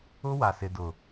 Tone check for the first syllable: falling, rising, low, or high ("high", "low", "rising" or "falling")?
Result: high